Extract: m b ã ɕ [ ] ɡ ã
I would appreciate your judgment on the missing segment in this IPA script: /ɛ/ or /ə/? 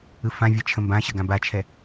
ə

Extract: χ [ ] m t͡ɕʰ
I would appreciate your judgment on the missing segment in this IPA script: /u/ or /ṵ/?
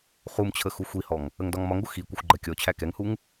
u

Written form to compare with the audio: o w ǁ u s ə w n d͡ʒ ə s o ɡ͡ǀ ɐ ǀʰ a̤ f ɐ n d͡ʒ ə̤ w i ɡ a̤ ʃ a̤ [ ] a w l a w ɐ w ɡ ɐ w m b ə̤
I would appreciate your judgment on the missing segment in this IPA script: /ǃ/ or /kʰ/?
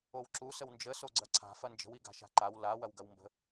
ǃ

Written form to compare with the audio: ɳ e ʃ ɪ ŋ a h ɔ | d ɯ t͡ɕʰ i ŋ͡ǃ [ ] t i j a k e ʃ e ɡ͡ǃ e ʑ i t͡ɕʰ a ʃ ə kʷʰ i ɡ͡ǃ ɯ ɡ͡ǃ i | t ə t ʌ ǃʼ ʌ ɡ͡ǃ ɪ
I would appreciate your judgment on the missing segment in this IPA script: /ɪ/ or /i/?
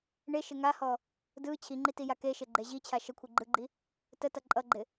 i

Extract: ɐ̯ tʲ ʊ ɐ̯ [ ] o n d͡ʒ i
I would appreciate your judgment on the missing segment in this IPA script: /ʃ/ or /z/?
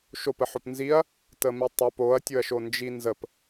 ʃ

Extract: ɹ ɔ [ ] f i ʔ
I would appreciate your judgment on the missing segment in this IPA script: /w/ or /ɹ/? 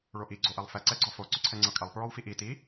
w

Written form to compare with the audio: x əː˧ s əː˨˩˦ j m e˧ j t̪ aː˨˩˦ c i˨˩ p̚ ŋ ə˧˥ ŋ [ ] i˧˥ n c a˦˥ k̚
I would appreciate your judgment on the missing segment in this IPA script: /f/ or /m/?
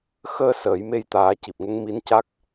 m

